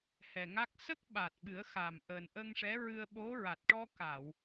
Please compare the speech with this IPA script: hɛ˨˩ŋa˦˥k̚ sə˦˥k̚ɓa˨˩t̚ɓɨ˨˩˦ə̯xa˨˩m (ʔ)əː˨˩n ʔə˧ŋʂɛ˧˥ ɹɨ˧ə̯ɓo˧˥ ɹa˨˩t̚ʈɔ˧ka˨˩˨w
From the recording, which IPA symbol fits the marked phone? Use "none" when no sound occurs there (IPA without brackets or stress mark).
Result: ʔ